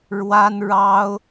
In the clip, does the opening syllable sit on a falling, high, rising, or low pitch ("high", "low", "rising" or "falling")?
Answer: high